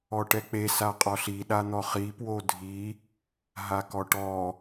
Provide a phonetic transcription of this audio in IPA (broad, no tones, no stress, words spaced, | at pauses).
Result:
ɔʈɛk͡pe saqʼɔɬi ɗan̪ɔχi pwodʱi | ɦakɔʈɔ